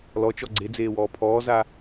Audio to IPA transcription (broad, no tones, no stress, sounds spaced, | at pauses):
l ɔ t͡ʃ ɔ ɡ͡ǀ e d͡z eː w ɔː pʰ ɔː z a